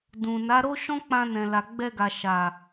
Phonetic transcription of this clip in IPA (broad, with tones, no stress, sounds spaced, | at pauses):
d ũ˨ n a˨˦ ɾ o˦ ʃ ɔ̃˦ k͡p ã˧ n ɛ̃˨ l a˨ ɡ͡b ɛ˧ ɡ a˨ ʃ a˨